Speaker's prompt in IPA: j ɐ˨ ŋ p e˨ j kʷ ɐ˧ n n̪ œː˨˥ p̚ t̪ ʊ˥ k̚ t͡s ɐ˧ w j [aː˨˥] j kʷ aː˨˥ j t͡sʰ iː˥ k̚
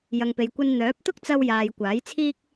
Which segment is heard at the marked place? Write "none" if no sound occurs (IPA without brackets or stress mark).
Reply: aː˨